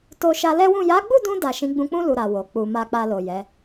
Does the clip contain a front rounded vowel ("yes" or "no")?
no